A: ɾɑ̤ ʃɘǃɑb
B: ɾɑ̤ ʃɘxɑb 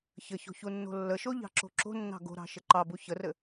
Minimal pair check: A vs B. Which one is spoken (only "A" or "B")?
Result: A